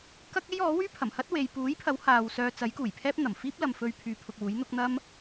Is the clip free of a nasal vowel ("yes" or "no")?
yes